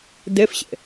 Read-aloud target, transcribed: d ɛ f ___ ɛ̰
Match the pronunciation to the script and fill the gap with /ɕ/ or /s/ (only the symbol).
ɕ